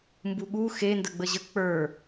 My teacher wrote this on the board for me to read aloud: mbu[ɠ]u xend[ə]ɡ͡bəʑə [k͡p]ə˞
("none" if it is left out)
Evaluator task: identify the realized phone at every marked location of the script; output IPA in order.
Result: ɠ, ə, k͡p

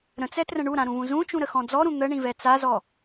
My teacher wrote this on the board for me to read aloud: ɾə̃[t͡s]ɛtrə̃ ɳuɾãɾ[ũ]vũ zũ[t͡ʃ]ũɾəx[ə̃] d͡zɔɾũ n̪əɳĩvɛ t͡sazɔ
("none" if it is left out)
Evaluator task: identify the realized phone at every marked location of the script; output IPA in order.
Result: t͡s, ũ, t͡ʃ, ɔ̃

